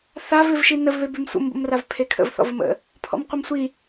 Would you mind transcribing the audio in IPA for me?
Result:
θavɪvʃi nəvβe bʉmsʷə̰mbə̰mrav pʰekʰə̰vθɔ̰vəm ə̰ | pʰɔ̰mqʷɪmsʷi

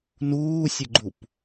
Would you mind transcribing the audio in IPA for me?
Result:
nuːsʲəɡ͡ǃup

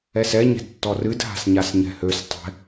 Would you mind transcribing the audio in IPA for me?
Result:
ɛsɛ ɲɛ̤dtːɔrɨd ɦa̤sɲasɲɛ̤høs tˤɛ̤

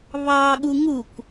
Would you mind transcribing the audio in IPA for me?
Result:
βɑ ɠuŋuk

